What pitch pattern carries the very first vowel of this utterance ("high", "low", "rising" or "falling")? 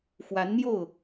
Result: rising